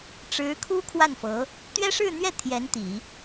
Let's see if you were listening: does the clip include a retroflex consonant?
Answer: yes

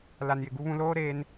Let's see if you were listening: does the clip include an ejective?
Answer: no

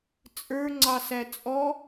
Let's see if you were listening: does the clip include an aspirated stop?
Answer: no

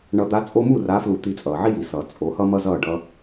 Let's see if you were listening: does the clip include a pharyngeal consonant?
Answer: yes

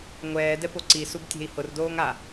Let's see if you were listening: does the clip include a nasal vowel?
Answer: no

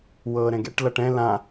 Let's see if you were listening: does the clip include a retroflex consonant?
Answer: yes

